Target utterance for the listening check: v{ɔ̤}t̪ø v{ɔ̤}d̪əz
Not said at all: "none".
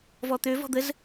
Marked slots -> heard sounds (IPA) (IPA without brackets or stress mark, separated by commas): ɔ, ɔ̤